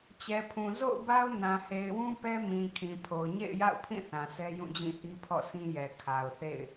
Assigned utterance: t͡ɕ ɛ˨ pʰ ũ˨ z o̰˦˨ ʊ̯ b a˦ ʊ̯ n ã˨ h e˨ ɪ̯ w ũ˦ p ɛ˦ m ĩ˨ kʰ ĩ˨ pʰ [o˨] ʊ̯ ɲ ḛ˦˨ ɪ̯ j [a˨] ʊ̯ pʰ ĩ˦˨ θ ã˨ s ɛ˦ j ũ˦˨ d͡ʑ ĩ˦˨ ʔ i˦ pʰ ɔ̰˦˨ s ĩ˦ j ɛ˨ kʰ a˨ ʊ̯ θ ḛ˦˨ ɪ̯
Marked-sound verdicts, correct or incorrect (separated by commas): correct, incorrect